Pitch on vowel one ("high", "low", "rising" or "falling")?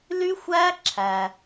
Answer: high